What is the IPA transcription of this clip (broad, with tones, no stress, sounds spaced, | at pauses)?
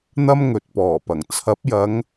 n̪ ɐ˥ m ŋ ɵ˨ t̚ p ɔː˨˩ p ɐ˨˩ ŋ t͡sʰ ɐ˨˥ p̚ j ɐ˨˧ ŋ